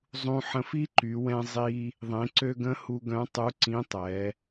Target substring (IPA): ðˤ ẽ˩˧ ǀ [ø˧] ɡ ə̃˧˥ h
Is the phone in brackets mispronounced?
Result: no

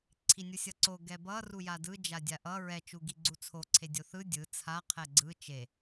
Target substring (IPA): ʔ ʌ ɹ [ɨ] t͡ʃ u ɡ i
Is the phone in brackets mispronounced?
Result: yes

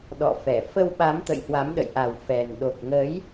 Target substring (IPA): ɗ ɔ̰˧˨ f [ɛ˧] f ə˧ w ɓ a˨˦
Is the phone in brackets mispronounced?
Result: yes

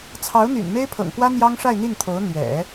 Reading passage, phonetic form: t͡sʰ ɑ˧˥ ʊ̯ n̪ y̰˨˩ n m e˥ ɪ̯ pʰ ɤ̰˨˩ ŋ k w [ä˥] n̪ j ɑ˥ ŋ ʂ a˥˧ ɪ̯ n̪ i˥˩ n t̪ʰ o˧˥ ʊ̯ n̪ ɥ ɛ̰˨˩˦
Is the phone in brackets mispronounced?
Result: no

